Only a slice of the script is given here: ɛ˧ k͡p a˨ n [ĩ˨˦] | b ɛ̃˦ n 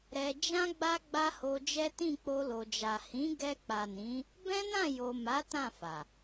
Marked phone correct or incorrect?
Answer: correct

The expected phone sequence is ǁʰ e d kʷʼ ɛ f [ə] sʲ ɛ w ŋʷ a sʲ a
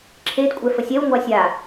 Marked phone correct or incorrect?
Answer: correct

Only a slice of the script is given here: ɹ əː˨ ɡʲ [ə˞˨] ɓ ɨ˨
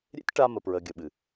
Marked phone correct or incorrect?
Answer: incorrect: ə˨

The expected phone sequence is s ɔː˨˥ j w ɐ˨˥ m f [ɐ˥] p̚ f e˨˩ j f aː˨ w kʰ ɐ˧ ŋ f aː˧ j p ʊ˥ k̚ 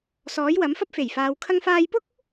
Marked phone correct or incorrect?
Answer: correct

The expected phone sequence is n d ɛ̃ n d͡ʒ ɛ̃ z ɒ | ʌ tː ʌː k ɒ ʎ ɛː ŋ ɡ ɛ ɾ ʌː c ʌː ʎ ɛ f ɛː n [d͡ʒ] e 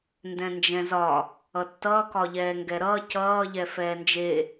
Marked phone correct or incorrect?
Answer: correct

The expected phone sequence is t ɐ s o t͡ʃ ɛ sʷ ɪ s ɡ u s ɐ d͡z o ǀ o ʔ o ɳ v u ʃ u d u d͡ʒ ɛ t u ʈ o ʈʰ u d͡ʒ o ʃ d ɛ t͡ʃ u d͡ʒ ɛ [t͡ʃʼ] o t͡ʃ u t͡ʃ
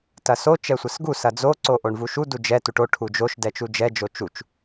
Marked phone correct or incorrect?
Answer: incorrect: d͡ʒ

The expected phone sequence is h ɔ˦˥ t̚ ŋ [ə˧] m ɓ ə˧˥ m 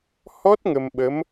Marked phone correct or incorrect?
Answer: correct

